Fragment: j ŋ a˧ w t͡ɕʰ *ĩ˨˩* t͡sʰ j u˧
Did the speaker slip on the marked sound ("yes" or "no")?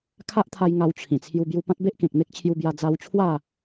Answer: no